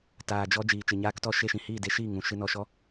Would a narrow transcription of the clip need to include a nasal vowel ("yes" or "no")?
yes